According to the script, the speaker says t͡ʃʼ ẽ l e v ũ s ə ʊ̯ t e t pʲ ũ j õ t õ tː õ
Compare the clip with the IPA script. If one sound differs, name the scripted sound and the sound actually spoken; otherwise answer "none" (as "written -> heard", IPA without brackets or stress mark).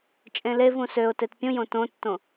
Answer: ə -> ø